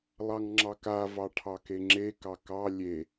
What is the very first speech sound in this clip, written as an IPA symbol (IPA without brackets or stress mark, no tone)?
lˠ